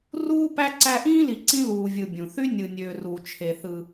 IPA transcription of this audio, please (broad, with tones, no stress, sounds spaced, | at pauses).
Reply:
r uː˥ p æ˦ ǀ æ˦ ʔ ĩː˥ l i˨ ǀ ĩ˦ l uː˨ vʲ ɯ˨ bʲ ũ˩ θ y˦ nʲ ɯ˨ nʲ øː˨ r uː˨ t͡ʃʰ e˨ θ ɯ˨